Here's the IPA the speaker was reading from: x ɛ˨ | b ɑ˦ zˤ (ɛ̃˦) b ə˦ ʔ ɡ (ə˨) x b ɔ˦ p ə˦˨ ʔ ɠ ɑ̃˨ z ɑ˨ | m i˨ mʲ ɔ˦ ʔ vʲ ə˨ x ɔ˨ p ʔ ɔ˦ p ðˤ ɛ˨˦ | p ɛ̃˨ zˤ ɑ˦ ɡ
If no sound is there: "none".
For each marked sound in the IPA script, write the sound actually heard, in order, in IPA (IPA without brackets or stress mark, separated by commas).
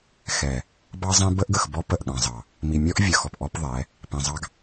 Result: ɛ̃˦, ə˨